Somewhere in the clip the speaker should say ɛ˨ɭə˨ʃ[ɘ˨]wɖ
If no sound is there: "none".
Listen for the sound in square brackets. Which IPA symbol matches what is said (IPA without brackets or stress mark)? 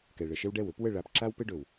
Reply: ɘ˦